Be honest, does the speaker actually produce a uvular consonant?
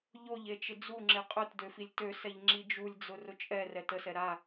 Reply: yes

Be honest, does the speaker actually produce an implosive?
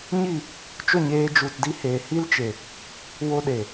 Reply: yes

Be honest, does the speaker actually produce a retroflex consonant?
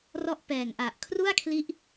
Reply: no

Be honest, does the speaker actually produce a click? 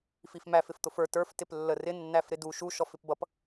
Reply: no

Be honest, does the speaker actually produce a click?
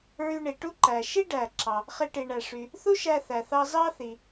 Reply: yes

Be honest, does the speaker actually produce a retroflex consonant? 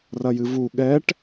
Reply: yes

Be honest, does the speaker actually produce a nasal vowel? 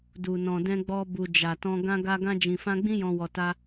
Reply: yes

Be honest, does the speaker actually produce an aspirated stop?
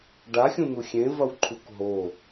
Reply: yes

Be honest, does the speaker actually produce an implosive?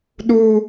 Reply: yes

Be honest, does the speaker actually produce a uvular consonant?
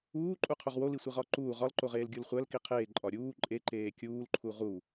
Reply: yes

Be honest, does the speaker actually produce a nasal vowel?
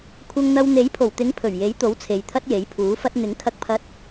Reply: no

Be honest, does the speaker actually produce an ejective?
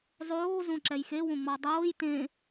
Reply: no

